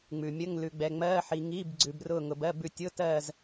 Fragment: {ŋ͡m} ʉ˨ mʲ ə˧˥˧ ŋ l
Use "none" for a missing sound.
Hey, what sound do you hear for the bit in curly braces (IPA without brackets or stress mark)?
ŋ͡m